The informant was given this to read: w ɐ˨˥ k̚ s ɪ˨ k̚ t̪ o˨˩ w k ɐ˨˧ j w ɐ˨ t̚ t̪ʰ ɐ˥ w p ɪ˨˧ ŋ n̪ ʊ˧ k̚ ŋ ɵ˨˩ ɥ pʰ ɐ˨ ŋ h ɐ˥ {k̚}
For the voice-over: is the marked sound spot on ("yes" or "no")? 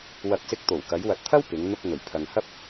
no